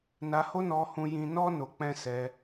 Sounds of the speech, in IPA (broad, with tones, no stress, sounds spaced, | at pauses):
n a˧ h o˦ n ɔ˧ h ũ˦ j ĩ˦ n ɔ˦ n o˧ k͡p ɛ̃˦ s ɛ˧